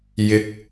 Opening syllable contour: rising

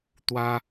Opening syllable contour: high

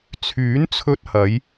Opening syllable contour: rising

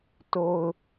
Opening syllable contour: low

